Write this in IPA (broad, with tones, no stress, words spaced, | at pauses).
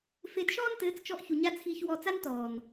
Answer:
fe˧dʃɔː˦ntɘː˨˦t͡st͡ʃɔ˧ʔ çu˨ɲa˧ t͡sʰiː˧çwɔː˧t͡s a˦ntɔː˨n